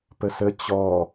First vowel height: mid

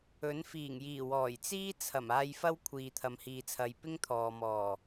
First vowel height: mid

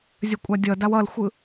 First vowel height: mid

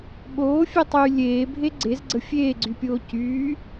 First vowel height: mid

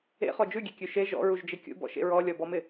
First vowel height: mid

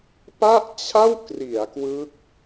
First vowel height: low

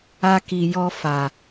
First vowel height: low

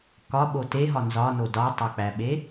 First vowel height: low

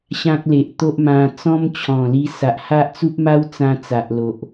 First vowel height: low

